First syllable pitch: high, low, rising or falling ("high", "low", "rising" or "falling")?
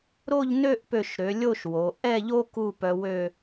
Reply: falling